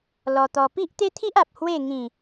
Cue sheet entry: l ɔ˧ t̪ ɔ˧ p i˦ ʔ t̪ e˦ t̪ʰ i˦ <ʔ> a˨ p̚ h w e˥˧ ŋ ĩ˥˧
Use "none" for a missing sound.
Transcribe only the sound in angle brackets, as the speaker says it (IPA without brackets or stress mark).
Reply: ʔ